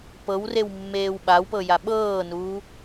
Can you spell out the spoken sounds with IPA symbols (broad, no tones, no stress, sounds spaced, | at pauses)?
p ɤ w r e w mː eː w ɓ a w p ɤ j a ɓ ɤː n uː